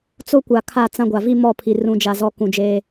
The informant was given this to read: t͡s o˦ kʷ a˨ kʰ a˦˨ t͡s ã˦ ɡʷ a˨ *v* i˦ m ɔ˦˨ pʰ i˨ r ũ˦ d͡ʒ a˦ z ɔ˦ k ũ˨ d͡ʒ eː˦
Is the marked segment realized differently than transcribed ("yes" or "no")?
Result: no